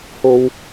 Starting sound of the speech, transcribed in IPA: h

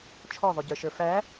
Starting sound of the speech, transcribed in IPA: t͡ʃʰ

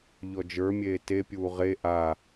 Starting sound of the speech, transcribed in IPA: ʎ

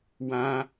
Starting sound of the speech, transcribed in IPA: w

